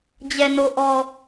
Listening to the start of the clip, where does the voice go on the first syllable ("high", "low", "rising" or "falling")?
low